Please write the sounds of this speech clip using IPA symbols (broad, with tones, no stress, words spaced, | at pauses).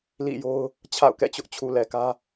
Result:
lḭ˦˨jo˦ʊ̯ | t͡ɕʰa̰˦˨ʊ̯kɛ̰˦˨t͡ɕʊ˦ʔt͡ɕʰu˨ lɛ˨kä˦